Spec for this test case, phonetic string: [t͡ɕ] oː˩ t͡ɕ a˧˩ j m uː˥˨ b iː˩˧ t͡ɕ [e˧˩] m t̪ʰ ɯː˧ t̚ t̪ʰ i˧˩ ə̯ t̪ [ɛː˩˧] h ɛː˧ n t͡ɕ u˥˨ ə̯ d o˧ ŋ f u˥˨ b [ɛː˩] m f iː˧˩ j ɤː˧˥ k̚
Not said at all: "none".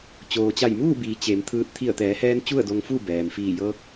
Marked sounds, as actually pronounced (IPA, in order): t͡ɕ, e˩˧, ɛː˩˧, ɛː˩

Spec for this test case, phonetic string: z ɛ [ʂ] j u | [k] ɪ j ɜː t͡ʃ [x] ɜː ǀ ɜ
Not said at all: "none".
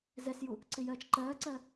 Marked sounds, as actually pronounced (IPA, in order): s, ǀ, ǃ

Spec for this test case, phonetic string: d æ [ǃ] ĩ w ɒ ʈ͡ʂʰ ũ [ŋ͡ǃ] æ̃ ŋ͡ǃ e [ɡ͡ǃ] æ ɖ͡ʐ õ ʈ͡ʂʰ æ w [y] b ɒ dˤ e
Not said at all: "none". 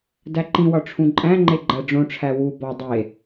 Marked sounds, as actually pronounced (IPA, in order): ǃ, ǃʼ, ɡ͡ǃ, u

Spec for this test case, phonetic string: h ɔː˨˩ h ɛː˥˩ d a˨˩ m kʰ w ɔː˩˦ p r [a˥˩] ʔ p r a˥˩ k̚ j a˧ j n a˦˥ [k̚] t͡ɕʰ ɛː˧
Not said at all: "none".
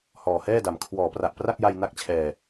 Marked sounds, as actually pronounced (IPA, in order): a˨˩, k̚

